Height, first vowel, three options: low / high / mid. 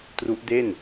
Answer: high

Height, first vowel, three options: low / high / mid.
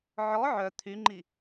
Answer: mid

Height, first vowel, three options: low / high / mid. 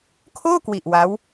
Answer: mid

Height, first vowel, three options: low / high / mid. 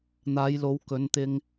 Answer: low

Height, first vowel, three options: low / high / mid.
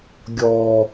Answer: mid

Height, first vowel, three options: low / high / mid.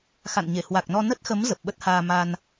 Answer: low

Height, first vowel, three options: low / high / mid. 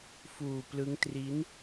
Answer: high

